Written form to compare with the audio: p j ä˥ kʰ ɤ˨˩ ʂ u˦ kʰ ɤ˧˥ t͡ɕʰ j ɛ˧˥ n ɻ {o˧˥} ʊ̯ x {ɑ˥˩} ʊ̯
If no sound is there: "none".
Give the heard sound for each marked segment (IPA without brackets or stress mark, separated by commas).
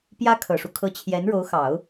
o˧˥, ɑ˨˩˦